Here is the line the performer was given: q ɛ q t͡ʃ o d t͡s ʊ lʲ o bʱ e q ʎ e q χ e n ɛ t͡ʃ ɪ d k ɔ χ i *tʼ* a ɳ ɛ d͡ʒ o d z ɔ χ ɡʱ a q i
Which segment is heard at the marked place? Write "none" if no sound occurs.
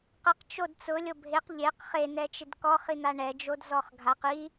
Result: n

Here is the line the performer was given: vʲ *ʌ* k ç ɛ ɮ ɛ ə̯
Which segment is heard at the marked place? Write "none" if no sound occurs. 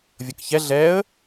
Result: ʌ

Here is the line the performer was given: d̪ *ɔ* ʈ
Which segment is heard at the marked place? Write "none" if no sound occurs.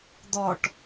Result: ɔ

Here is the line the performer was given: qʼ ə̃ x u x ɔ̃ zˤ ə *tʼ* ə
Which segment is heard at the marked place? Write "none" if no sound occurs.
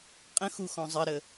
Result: ɾ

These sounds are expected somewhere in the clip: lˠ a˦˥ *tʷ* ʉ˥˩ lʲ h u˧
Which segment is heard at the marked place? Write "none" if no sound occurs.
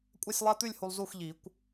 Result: t̪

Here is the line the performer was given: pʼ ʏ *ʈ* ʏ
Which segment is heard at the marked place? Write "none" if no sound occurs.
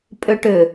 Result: ʈ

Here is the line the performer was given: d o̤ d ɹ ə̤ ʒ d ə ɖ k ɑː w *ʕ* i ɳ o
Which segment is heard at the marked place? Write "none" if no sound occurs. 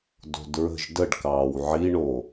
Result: ʕ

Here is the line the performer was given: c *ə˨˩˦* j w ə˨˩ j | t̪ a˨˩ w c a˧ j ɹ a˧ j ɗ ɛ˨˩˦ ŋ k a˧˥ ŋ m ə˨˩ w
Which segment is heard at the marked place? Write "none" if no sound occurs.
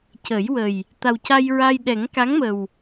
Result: ə˨˩˦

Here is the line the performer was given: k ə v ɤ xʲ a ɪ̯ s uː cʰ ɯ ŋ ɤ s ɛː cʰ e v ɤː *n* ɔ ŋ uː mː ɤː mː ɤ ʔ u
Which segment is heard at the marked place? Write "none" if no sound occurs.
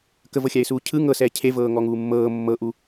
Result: ŋ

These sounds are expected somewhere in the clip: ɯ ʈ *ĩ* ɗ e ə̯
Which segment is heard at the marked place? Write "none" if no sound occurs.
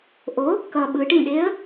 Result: ĩ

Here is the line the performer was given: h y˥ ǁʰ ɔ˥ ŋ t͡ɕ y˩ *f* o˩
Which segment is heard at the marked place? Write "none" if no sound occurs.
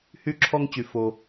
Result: f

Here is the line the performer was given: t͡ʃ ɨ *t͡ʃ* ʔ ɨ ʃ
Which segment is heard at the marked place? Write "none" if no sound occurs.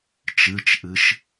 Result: t͡ʃ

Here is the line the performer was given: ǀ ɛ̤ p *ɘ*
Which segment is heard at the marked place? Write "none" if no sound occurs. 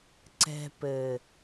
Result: ɘ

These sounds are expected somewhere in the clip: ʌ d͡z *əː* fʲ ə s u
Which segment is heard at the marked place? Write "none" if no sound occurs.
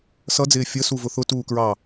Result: ɪː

